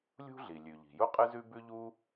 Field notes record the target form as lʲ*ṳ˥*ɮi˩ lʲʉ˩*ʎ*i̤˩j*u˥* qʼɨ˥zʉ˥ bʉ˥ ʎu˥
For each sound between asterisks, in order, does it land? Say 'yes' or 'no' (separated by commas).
yes, yes, yes